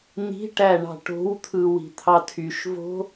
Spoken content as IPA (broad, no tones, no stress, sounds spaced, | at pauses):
n̪ i̤ ʈ æ ɳ ɑ̤ ʈ o̤ w t̪ʰ ɯ w i̤ t̪ʰ ɑ tʰ y ʃ v o̤